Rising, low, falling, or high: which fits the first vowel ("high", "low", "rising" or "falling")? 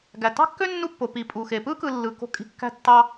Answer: low